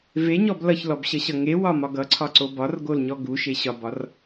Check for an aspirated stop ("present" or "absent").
present